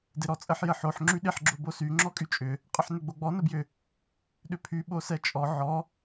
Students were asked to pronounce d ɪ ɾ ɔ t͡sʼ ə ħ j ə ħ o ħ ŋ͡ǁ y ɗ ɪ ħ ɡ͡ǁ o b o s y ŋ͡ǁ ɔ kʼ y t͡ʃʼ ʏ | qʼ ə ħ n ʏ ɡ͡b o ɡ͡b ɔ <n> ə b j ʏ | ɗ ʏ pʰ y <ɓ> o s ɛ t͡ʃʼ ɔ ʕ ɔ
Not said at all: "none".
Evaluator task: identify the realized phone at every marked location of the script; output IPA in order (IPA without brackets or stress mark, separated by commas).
n, ɓ